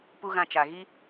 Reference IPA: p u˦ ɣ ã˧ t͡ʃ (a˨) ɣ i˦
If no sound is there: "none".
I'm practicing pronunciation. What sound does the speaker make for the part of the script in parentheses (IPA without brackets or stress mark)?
a˨